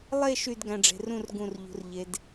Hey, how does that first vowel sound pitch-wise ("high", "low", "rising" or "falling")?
falling